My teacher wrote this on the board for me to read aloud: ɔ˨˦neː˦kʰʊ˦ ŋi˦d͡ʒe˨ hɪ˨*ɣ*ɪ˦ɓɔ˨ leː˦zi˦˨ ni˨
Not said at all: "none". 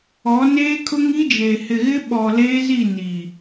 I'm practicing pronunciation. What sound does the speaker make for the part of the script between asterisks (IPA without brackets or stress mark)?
ɣ